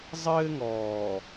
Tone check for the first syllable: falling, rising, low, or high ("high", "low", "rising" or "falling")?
high